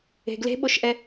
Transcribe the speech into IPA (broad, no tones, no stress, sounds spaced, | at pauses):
e̤ ɡ l e̤ ɓ o ʃ ʔ ɛ